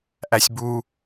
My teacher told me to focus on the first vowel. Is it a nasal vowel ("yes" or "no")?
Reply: no